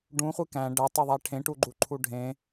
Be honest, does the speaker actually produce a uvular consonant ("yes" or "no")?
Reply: yes